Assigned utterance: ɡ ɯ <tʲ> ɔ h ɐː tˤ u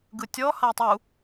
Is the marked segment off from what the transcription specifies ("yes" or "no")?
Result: no